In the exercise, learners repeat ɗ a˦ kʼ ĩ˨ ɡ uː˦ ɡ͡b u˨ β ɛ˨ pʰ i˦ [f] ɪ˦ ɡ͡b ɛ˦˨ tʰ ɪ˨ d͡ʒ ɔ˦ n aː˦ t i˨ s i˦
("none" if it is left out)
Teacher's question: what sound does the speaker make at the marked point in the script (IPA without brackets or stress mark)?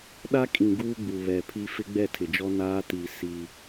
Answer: f